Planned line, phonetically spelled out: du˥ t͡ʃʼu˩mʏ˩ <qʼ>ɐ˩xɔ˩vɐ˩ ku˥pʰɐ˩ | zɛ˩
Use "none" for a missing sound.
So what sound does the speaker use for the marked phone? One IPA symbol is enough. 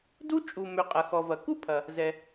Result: qʼ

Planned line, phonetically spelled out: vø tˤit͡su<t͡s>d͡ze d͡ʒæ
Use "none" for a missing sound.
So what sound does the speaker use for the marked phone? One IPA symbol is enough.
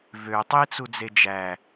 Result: none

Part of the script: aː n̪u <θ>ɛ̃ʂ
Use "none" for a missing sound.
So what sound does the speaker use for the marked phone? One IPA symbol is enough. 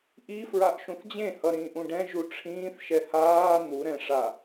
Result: ɾ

